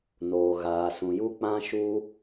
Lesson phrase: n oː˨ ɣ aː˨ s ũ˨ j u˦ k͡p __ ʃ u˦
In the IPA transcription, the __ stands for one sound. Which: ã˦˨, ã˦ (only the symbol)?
ã˦